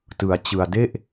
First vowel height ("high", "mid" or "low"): high